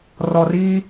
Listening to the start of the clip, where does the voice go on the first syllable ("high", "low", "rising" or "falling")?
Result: low